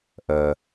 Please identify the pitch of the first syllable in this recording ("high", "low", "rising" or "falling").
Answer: low